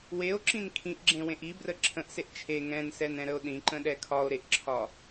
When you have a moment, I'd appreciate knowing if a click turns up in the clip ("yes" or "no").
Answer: yes